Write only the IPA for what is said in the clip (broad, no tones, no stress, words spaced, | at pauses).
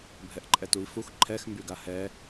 bʱɛʔǃʼɛtui̯fux ǃʰɛx mbyɡahɛ